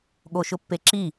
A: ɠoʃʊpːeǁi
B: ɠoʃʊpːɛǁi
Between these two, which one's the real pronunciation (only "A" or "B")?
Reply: A